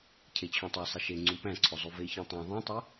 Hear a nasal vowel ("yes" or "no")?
yes